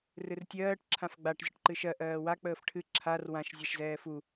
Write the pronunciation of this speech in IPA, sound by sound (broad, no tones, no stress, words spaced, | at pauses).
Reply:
rɨrtʲɜːʈ ǁʰãfɡ͡baʈ zʲəʈǃɨʃɜ ʔɜːwa k͡pəːfʈʰɨ ǁʰar wãʃ zʲaʃzɛːfu